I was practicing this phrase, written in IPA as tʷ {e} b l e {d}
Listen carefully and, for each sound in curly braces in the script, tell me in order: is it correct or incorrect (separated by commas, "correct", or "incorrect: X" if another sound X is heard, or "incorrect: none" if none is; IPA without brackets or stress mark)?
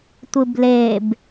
incorrect: ɨ, incorrect: b